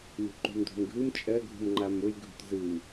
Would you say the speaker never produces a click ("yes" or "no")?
no